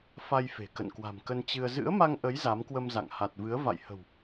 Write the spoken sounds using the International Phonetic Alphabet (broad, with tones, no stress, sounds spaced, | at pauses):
f a˧ j f e̤˨˩ k ə̰˧˨ n k w a̤˨˩ m k ə˧ n t͡ɕ ɨ˧ ə̯ z ɨ̰˧˥ ə̯ m a˧ ŋ ʔ ə˨˦ j z a˨˦ m k w ə˧ m z a̰˧˨ ŋ h a˨˩ t̚ v ɨ˨˦ ə̯ v a̰˧˨ j h ə̤˨˩ w